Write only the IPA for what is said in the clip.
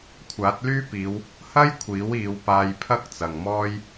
kʷʰ aː˨˥ t̚ l yː˥ p iː˨˧ w | h ɐ˥ j kʷʰ iː˨˥ w iː˨˧ w p aː˧ j pʰ ɐ˥ k̚ t͡s ɐ˨ ŋ m ɔː˥ j

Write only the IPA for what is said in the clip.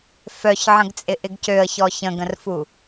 f œ ç ʕ ə̃ ɡ t͡sʼ ɪ ʔ ɪ ɡ c ø ə̯ ç ɔ ç ə̃ ɡ ə̃ r f u

